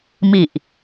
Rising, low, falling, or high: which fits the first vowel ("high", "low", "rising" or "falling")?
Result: low